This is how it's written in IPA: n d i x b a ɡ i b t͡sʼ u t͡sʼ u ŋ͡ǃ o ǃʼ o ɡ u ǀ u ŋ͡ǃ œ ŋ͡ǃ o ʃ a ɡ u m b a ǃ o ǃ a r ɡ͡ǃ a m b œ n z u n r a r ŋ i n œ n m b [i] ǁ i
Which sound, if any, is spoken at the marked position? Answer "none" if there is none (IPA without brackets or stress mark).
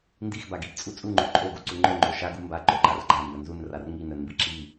i